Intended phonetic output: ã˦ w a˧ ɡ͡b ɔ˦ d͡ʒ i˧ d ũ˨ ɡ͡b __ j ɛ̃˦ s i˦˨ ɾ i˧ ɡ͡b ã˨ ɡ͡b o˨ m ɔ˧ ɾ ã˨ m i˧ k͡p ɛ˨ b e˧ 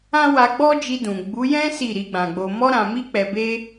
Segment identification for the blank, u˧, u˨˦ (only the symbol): u˨˦